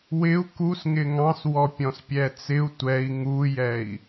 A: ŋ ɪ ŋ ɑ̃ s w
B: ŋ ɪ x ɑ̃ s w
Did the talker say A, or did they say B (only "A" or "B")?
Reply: A